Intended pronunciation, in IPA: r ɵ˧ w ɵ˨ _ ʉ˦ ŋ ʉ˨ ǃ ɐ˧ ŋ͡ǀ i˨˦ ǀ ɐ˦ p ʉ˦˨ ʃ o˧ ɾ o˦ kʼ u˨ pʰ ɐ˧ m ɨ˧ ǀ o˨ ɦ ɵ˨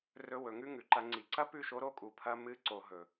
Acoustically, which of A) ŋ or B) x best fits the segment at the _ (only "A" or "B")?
A